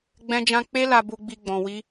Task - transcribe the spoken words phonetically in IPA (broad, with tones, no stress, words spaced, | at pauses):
ɡ͡bɛ̃˦d͡ʒã˦ k͡pe˦la˧bu˧ɡ͡bi˧ ɡ͡bɔ̃˧wi˦